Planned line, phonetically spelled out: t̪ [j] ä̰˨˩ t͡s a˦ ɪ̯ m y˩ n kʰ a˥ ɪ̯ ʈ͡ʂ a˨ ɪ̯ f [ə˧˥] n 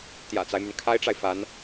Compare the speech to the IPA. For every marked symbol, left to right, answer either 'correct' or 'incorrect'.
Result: correct, incorrect: a˧˥

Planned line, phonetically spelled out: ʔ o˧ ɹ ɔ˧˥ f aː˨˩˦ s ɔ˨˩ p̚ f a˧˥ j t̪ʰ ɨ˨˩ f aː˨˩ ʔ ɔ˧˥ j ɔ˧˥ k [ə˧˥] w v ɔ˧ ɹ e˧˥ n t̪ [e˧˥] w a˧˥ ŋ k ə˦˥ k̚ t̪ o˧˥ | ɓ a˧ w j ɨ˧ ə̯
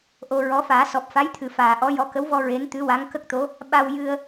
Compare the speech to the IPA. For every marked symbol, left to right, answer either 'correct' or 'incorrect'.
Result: correct, incorrect: ɨ˧˥

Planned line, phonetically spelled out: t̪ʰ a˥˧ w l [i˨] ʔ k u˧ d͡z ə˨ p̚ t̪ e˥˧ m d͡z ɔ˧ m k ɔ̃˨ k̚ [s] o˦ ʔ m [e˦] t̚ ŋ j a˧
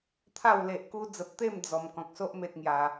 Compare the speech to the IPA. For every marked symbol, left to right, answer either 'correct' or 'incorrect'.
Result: incorrect: e˨, correct, correct

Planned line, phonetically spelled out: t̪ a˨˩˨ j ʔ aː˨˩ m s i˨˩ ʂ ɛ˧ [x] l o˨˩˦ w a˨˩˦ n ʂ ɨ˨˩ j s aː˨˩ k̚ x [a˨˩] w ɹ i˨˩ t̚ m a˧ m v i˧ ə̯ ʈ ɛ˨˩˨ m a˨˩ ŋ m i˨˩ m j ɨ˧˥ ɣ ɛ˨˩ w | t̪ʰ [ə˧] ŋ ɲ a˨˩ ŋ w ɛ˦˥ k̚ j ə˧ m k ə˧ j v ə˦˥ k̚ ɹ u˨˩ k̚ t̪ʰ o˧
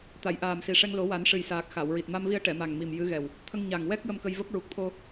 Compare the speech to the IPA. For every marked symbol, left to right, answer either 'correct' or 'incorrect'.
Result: incorrect: ŋ, incorrect: a˨˩˨, correct

